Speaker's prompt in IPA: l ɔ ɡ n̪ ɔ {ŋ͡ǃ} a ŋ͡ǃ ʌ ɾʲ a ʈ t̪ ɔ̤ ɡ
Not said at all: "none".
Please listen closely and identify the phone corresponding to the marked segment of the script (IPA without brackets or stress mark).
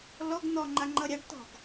ŋ͡ǃ